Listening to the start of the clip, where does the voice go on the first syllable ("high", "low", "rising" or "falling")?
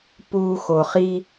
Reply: high